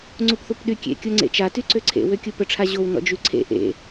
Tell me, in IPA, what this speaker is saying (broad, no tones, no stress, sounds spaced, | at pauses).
ŋ͡ǀ u p θ u p ɗ y kʲ ḛ kʲ o ŋ͡ǀ ḛ t͡ʃ a t y ǀ ø ǀʰ ḛ w ø kʲ u p ə ʈ͡ʂʰ a ʑ o w n ɔ̰ d͡ʒ y ǀʰ ḛ ʔ ḛ